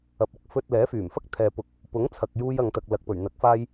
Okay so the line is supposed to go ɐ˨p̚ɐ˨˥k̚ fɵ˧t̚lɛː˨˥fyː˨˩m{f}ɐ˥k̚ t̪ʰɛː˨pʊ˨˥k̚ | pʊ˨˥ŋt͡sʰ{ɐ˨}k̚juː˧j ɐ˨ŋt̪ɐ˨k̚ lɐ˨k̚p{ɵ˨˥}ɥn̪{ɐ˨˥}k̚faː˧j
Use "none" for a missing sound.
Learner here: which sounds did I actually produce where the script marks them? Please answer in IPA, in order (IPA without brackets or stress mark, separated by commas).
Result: f, ɐ˨, ɵ˨˩, ɐ˨˥